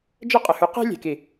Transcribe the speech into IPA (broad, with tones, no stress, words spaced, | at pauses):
d͡ʒə˦qʼə˨hʉ˨˦ qe̤˦ lʲe̤˨ki˨